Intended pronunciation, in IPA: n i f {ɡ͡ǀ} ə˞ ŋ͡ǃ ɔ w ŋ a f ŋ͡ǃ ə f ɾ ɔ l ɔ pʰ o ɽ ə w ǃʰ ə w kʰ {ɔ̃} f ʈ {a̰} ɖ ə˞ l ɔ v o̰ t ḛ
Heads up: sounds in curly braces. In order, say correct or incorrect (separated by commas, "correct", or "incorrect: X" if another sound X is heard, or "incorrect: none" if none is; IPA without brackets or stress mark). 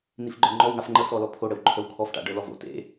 incorrect: ɡ͡ǃ, incorrect: ɔ, correct